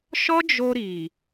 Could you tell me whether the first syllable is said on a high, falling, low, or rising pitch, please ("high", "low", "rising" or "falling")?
high